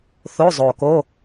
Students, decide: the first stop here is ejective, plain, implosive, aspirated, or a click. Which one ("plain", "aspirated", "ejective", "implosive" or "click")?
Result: plain